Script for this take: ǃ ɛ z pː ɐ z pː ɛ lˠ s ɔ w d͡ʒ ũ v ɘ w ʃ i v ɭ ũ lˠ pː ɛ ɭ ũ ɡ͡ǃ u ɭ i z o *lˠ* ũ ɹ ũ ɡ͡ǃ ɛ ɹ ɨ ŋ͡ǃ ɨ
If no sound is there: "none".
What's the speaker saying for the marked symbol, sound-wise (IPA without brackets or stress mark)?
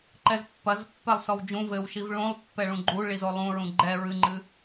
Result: lˠ